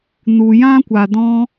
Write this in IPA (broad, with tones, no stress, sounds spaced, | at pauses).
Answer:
n u˨ j ã˦ kʷ a˨ d ɔ̃˧